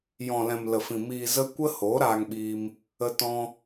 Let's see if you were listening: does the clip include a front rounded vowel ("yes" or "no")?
no